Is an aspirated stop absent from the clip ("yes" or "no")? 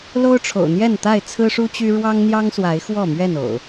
no